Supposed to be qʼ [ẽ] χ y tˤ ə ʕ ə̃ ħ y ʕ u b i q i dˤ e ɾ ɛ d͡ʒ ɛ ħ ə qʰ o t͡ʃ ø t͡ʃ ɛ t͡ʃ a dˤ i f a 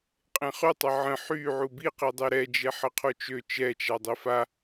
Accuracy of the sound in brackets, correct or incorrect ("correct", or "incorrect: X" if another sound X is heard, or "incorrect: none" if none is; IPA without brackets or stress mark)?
correct